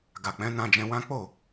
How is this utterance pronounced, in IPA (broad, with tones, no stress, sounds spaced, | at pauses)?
ɡ a˨ k͡p ɛ̃˨˦ n ã˧ d͡ʒ ɛ̃˧ w ã˦ k͡p o˦˨